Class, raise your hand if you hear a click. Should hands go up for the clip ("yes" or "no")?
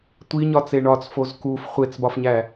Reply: no